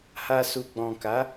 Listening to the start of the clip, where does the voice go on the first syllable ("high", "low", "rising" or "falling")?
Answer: low